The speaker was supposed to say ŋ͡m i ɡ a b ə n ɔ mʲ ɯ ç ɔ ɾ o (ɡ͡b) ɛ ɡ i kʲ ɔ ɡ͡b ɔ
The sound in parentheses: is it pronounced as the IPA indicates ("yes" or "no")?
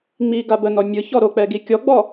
no